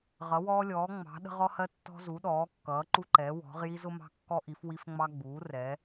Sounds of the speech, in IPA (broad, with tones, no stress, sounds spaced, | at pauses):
ʁ ʌ˩˧ w ɔː˧ lʲ ɔː˩˧ ŋ͡m ɑ̤˩˧ ɗ ə̤˧ ʁ ɔ˧ h ɜ˧ tː ɔ̤˧ z u˩˧ ɗ ɔː˩˧ kː ʌː˩˧ ǃ u˧ ǃ ɛ˩˧ w ɔ̤˩˧ ʁ j i˧ z ʊ˧ m ɑ̤˧ kː ɔ˧ ʔ i˩˧ f w i˧ f ŋ͡m ɑ˧ ɡ͡b uː˩˧ r ɛ˩˧